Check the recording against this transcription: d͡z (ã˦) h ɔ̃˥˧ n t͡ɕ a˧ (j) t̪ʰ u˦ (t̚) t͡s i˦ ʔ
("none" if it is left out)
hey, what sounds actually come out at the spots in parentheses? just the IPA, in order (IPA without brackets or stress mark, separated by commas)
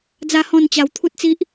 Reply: a˦, w, t̚